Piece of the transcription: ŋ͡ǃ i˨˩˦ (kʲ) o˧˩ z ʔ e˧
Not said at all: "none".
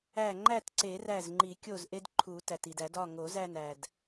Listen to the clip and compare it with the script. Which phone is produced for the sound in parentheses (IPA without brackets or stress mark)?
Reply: kʲ